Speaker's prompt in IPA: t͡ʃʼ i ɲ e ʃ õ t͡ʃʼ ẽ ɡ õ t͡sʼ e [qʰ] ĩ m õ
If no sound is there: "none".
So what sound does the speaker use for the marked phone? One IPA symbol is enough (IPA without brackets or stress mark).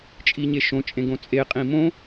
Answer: qʼ